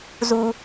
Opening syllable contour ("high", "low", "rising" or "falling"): high